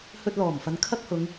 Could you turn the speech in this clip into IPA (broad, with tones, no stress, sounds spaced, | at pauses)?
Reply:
h ɵ˧ t̚ l ɔː˨˩ m f ɐ˨˧ n kʰ ɐ˥ k̚ h ʊ˨˧ ŋ